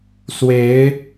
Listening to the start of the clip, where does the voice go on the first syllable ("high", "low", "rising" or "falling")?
rising